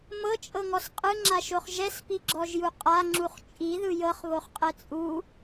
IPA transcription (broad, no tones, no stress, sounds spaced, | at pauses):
m ɤ t͡ʃʼ ɤ ŋ ɔ s qʼ ɯ ŋ͡ǁ a ʃ o χ ʒ ɛ s p i ɡ͡ǁ ɔ ʒ j u qʼ a ŋ͡ǁ u χ t͡ʃʼ i ð ɯ j ɤ χ β o χ qʼ ɛ t͡sʼ u